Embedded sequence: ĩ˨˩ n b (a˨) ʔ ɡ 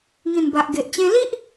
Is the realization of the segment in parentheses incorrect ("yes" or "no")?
no